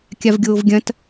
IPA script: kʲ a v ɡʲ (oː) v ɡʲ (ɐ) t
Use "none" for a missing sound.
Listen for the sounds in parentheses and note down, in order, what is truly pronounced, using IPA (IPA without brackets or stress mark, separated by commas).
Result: oː, ɐ̃